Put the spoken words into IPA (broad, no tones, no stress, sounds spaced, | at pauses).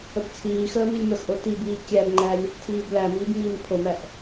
ə b t͡sʰ iː x əː m i lʲ m ə x ʔ o t i b iː kʲ æ b ŋ͡ǃ æ lʲ | tʰ iː b l æ m iː b m iː m pʰ o m æ ʔ